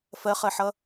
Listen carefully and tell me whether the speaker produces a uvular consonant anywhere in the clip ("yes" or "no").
yes